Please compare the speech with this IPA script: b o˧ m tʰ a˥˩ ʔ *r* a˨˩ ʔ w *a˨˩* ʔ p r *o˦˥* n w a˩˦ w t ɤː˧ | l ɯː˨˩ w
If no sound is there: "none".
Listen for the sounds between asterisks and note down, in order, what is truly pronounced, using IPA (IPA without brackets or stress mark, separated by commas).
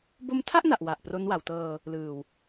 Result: n, a˨˩, o˦˥